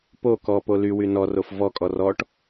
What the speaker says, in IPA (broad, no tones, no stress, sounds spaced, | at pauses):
p o k ɔ p o l y w y n ɔ r o f v ɔ kʼ ɔ r ɔ ʈ